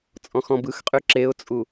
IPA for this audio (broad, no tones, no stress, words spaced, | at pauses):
t͡sʼɔ̃xɔ̃bɯxqʼy ǁeʊ̯t͡sʼu